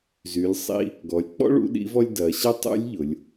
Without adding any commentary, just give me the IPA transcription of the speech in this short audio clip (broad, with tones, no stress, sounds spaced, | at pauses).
z y˩˧ lʲ sˤ ḭ˧ | ɡ ɔ˩˧ lʲ k͡p ɔ̰˥ ɭ ṵ˧˥ ɗ ḭ˧˥ v ɔ˥ lʲ d ɐ˩˧ ɕ ɐ˥ tˤ ṵ˧˥ lʲ ʎ ʊ˩˧ lʲ